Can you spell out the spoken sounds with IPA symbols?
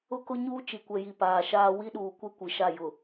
ʊ˦ k ʊ˦ ɲ uː˦ t͡ʃ i˨ kʷ ɛ˨ j i˨ p aː˨ ʃ aː˦ w i˦ ɗ uː˨ kʷ e˦ kʷ i˨ ʃ a˦˨ j ʊ˨

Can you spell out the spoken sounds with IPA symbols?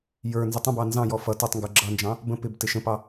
j ə˞ n z ə tˤ ə̃ b ɑ n z ɑ̃ j ɔ f ʌ t ʌ tˤ ŋ ɡ ə˞ ɡ͡ǁ ʌ n d͡ʒ ɑ̃ | b ə̃ p ɪ b t ɪ ʃ ə̃ p ɑ

